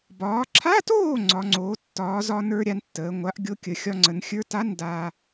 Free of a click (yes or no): no